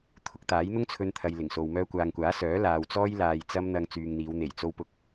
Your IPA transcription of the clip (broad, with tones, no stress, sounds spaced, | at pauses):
t̪ʰ ʊ˧ k̚ t̪ aː˨˥ j n̪ ʊ˥ ŋ t͡sʰ ɵ˧ n t̪ʰ ɐ˨ j l ɪ˨˩ ŋ s o˨ w m œː˧ kʷ aː˨ ŋ kʷ aː˨˥ s œː˨˥ l aː˧ w t͡s ɔː˥ j l aː˨ j t͡s ɐ˧ m n̪ ɐ˨ ŋ t͡s yː˨ ŋ n̪ iː˨˧ w n̪ e˨˩ j t͡s o˧ w p ʊ˧ k̚